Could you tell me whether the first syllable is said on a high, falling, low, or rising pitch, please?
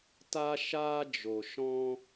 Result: high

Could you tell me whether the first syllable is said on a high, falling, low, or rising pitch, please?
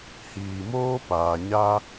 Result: low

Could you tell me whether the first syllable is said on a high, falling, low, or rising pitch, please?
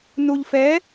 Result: low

